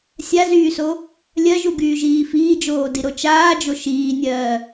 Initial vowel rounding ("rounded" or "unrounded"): unrounded